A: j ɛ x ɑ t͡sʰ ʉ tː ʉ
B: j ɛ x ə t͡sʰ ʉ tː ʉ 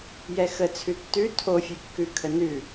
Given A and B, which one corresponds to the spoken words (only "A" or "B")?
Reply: B